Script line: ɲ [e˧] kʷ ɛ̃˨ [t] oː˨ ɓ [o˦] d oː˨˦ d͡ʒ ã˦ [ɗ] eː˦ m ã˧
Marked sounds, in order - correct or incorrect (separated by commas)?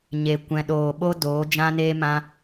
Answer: incorrect, incorrect, correct, incorrect